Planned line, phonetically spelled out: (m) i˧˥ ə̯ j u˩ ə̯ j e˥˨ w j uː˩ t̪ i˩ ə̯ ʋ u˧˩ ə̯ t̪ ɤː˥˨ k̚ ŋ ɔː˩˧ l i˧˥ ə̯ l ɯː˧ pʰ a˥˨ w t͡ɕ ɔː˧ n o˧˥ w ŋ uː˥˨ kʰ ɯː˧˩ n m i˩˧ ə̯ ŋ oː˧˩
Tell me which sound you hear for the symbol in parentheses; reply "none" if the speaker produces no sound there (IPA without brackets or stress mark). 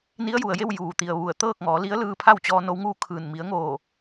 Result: n